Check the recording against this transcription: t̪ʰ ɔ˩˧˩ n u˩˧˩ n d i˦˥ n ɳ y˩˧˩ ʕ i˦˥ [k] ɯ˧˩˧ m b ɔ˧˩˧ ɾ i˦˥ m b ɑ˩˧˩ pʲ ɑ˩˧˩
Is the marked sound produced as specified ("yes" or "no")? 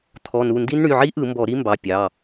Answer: no